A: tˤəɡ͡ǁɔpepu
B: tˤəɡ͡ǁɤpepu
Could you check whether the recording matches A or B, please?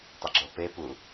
B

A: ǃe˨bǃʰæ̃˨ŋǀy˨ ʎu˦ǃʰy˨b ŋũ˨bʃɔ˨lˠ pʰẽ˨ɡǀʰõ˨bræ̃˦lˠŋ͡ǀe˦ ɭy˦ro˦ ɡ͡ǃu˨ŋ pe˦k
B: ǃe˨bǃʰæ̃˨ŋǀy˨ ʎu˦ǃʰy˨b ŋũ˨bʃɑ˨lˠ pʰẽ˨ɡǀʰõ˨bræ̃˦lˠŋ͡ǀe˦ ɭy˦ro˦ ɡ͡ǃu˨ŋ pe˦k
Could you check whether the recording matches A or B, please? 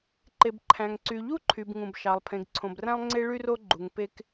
B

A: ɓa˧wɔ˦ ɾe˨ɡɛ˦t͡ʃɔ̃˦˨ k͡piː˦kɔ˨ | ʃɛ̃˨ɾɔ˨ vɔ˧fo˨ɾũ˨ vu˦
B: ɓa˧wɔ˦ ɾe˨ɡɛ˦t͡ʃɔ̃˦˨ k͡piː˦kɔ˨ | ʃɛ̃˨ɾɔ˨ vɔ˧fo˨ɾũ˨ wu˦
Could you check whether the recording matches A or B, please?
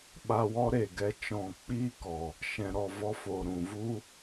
A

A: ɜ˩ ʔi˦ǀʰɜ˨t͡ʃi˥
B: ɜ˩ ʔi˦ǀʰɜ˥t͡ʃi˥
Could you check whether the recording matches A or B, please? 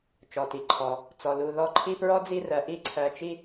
A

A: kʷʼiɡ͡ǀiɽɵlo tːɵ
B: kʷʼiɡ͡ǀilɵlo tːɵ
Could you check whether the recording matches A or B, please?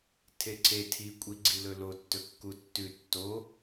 B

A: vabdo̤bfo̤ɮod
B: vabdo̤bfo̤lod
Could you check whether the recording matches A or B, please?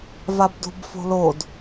B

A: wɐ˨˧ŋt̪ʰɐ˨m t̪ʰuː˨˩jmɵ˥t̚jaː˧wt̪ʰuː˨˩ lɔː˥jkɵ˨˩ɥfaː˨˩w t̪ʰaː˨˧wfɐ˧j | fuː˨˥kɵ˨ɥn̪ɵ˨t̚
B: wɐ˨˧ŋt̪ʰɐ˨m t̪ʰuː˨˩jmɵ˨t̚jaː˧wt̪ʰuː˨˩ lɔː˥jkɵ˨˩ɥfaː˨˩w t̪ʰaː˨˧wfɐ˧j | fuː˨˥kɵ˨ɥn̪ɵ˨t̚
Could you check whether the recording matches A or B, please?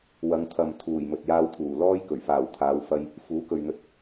B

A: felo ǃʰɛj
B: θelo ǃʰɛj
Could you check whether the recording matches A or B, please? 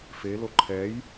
A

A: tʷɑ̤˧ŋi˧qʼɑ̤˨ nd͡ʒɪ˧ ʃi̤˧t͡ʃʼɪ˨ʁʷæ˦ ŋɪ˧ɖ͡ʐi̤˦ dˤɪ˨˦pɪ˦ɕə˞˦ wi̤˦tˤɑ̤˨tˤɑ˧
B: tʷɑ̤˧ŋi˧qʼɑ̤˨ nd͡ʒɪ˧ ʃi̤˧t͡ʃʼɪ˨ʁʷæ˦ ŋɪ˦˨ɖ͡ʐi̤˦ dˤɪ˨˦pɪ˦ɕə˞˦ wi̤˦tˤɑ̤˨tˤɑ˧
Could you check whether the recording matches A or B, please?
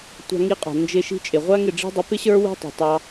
B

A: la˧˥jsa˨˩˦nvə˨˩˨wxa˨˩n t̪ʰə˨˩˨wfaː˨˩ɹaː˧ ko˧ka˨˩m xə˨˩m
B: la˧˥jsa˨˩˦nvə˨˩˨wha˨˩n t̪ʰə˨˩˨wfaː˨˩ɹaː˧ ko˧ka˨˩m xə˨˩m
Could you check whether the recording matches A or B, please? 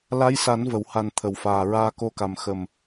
B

